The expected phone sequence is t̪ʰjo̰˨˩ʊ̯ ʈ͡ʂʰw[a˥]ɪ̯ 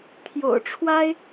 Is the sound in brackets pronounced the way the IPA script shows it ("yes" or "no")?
yes